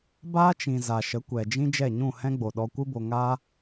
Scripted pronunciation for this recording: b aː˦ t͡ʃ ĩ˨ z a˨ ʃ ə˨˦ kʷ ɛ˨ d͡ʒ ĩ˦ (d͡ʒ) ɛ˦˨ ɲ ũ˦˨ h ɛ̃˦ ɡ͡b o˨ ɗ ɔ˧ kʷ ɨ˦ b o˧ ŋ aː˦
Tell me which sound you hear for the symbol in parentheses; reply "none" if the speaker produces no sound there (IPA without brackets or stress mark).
d͡ʒ